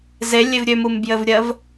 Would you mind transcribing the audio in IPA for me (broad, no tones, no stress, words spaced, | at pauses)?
zelʲev ɾʲømumbjɘvɾʲɜv